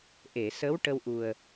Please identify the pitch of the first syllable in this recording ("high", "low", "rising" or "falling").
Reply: low